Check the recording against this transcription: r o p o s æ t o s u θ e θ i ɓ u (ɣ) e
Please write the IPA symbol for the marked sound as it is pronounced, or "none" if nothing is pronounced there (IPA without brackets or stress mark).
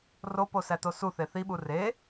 r